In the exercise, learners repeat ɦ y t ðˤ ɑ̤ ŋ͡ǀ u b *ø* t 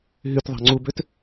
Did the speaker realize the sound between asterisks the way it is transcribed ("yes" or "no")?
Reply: yes